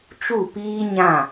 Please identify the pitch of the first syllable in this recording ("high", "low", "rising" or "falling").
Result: falling